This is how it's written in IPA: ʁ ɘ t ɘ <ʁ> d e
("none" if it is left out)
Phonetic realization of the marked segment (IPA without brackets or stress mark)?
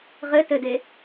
none